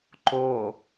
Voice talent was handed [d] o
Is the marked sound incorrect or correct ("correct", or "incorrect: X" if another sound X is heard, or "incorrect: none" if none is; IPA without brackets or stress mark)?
incorrect: ǃ